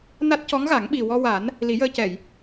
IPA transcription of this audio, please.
n a˦˥ t̚ c ɔ˧˥ ŋ ɣ a˨˩˦ ŋ ɓ i˨˩ w ɔ˧ w a˨˩˦ n | l i˨˩˦ j əː˧ c ɛ˨˩˨ j

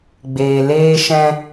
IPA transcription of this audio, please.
ɡ͡b eː˨ l eː˧ ʃ ɛ̃˧

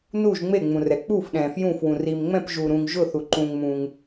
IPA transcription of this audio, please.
n u˧˩ ʒ ŋ͡m e˧˩ ŋ͡m ũ˩ r ɛ˩ k͡p uː˧˩ f ɗ ɛ̃ː˩ f j ũ˧˩ f w ũ˩ r i˩ m ŋ͡m ɛ̃˧˩ p ʒ uː˩ ɾ ũː˩ ŋ ʒ ʊ˧˩ θ u˩ ǃ ũː˩ ŋ m ũː˩ ŋ

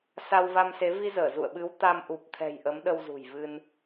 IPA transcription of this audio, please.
s a˧ w v a˧ m s e˨˦ v i˧ z əː˧˩ z ṵ˧˨ ə̯ ɓ ɨ˨˦ w t̪ a˧ m ʔ u˨˩ p̚ t̪ʰ ɛ̤˨˩ j ʔ ə˨˦ m ɗ ə˧ w z ṳ˨˩ j v ɨ˧ n

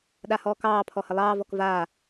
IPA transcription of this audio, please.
ɗ a h ɔː k ɑː pʰ ɔ h ə lˠ ɑː v ɔ k v aː

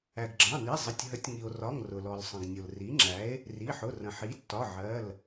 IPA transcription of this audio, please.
æ˩ ɡ ɡ͡ǁ ɑ̃˩˧˩ n i˩˧˩ zˤ ɪ˩˧˩ tʲ ɦ ə˩˥ tʲ ŋ i˩ o̯ r ɒ˩˧˩ ŋ r ʊ˩ l ɔ˩ l sˤ ə̃˩ ɡ nʲ ʊ˩ l r i˩˥ ŋ͡ǁ æ˩˥ e̯ | r i˩˧˩ ħ ʊ˩˧˩ r ə̃˩ ħ i˩˥ tː ɒ˩˧˩ ʕ ɜ˩˧˩ l

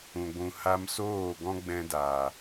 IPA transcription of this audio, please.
ũ˨ ɡʷ ũ˨ h a˧ m s oː˦˨ ɡ ɔ̃˦ ɡ͡b ɛ̃˧ d aː˨

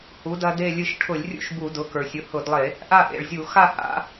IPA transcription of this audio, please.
h u˩˥ d ɐ˦ d e˥˨ lʲ ɨ˧˩ ʃ ʈʰ ʊ˧˩˧ lʲ rʲ ṵ˥˨ ʃ b u˧˩˧ d ʊ˩˥ k ə˞˩ sʲ ʊ˩˥ h ʊ˧˩˧ d lˠ e˧˩˧ | ʔ a˥˨ ʔ ḛ˩ ɭ zʲ u˧˩˧ x a˥˨ h a̰˩˥

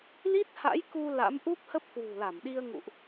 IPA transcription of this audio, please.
l i˦˥ t̚ h a̰˧˥ j k u˧ l a̰˧˥ m ʔ u˦˥ p̚ h ə˦˥ p̚ k w ṳ˨˩ l a˧˩ m ɗ i˧ ə̯ ŋ ṵ˧˨ ʔ

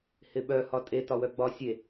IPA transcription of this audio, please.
h ɪ ɓ œ h ɒ tʼ e t ɒ w œ ɡ͡b ɒ sʲ e

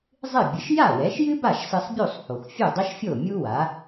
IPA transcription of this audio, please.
zˤ ɨ˥˩ bʲ ɨ˩˥ ʃ j a˥˩ w ɛ˩˥ ʃ j ɨ˥ b a˥˩ ʃ s ɨ˧ sˤ bʲ u˥˩ sˤ h o˩ x fʲ u˥˩ dˤ ɛ˥ ʃ fʲ o˥˩ mʲ u˥ w a˩˥

